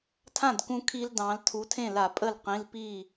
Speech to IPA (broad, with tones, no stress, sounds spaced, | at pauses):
tʰ ã˥˩ d k ũ˧ kʰ i˧ l d ɑ̃˩˧ l tʰ u˩˧ tʰ ẽ˥˩ l a˧˩˧ pʼ ə˥˩ l q ĩ˩˧˩ l p i˥˩